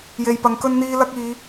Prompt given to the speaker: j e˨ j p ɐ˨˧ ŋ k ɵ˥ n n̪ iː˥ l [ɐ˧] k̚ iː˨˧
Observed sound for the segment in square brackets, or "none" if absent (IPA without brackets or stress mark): ɐ˥